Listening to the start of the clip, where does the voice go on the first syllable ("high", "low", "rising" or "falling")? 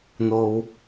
low